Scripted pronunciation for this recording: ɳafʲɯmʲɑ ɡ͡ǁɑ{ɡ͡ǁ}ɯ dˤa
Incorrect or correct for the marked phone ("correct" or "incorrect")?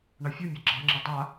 incorrect